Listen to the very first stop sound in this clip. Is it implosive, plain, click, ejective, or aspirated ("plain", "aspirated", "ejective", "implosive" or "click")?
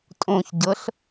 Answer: ejective